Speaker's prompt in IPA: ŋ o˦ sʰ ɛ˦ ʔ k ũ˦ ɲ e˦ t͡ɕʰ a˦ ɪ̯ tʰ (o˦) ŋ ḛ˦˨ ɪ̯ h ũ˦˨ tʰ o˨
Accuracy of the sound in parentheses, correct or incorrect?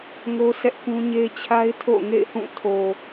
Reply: incorrect